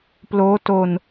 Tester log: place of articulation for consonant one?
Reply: labial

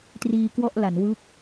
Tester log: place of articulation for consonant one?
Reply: alveolar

